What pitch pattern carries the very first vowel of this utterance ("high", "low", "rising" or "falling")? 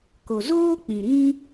low